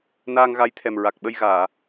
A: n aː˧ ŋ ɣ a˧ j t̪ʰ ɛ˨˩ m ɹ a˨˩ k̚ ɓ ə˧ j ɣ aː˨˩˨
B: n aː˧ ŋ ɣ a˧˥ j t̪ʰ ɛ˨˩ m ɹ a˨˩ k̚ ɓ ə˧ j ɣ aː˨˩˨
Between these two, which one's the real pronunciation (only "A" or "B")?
B